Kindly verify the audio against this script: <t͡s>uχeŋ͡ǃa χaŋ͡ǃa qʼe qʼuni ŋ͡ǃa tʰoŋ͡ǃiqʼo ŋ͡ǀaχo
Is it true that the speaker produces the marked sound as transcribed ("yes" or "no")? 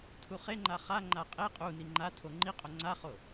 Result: no